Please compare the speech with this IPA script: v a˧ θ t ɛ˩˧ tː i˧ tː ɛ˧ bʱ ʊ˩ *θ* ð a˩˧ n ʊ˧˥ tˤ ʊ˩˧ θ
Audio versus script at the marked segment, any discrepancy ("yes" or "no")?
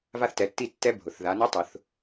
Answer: no